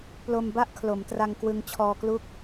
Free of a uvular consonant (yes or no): yes